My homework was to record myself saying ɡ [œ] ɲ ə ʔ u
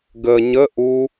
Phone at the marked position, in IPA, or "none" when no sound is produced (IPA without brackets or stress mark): ə